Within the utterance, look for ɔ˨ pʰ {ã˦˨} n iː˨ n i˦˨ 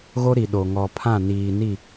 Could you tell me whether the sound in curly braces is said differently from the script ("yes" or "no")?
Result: no